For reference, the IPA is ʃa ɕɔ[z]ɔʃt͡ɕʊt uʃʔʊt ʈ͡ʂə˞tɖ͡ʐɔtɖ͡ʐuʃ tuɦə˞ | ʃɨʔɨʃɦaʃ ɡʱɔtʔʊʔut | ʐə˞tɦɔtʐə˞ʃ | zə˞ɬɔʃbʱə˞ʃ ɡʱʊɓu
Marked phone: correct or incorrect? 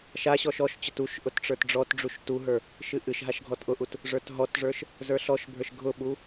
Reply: incorrect